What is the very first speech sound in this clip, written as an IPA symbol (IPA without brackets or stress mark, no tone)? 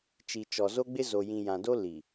t͡ʃ